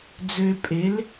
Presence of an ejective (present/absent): present